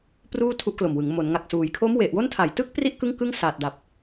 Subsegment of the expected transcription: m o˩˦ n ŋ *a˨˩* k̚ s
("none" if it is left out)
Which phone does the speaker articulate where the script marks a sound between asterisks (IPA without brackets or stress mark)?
a˨˩